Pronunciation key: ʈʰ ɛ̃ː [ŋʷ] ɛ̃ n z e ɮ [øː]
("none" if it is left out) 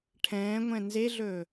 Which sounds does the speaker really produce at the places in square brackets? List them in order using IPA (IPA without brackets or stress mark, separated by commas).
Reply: ŋʷ, ɵː